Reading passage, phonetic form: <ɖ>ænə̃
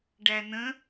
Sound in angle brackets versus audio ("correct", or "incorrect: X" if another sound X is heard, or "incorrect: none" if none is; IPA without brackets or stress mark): correct